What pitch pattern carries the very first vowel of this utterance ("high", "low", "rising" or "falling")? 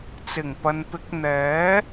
low